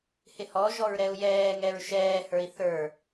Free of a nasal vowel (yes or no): yes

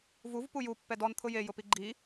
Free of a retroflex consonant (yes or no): yes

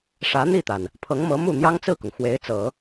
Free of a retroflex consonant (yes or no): no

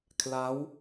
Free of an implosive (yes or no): yes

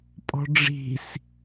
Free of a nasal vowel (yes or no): yes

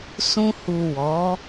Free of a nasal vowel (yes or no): no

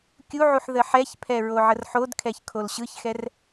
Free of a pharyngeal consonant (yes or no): no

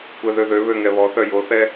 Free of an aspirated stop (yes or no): yes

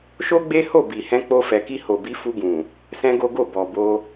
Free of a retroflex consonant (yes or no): yes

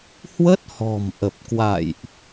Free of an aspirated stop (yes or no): yes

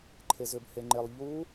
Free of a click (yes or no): no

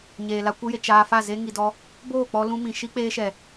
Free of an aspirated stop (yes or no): yes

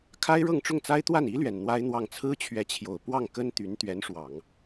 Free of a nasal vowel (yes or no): yes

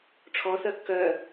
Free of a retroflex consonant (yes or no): no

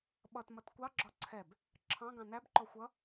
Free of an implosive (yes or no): no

